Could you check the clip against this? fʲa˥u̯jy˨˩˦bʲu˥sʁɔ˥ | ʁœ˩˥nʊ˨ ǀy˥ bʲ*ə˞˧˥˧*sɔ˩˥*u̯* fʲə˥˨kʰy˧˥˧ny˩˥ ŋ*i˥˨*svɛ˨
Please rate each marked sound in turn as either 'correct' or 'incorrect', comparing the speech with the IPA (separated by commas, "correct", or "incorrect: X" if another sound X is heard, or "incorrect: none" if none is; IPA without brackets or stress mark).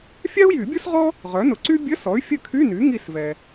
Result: incorrect: ə˧˥˧, incorrect: y̯, correct